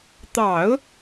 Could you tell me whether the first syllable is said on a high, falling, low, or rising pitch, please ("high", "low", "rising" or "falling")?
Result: low